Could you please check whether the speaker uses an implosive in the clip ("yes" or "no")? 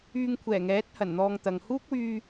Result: no